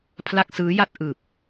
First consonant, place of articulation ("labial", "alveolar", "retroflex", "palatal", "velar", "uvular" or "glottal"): labial